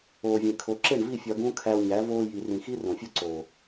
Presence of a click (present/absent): present